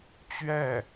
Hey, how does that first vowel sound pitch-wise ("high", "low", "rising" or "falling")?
falling